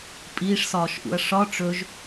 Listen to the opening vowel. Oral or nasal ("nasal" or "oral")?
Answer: oral